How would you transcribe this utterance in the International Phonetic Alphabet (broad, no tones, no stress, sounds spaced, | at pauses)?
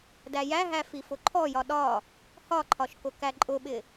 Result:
d æ j æ ɦ æ f i f ʊ ǃʰ ɔ j ɒ ɗ ɒ | h ɒ ǃʰ ɒ ʃ k ʊ k æ ǃʼ ʊ ɓ ɪ